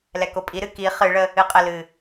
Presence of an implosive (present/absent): absent